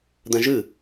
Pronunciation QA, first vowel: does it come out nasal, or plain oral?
nasal